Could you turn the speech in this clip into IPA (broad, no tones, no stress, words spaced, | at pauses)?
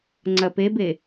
ŋ͡ǀɐpebe